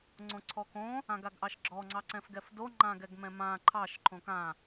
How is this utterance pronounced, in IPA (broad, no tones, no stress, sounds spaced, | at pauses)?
ŋ͡ǀ õ ǀʰ ɔ k õ | ã ɡ a ɡ ʔ ɑ ʃ ɡ͡ǁ ɔ ŋ͡ǀ ɑ ǀ ɛ̃ f ɡ ɛ f d o ŋ͡ǃ ã ɡ ɛ ɡ m ɛ̃ m ã ǃʰ ɑ ʃ ǃʰ õ k ã